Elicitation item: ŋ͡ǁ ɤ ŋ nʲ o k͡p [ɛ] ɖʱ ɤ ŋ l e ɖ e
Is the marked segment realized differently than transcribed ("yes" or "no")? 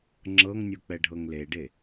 no